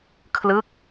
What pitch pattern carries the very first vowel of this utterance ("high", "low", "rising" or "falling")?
falling